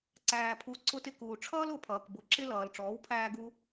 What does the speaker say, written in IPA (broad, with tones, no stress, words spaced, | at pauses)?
ǀæː˩pʰu˩˥ ǀʊ˧tɪ˧kuː˩ʈ͡ʂʰʌː˥l ʊ˩˥pʰʌː˩kbʊ˩˥ ǁɪ˥lʌː˩l ʈ͡ʂɔː˩˥wpʰæː˧ɡu˧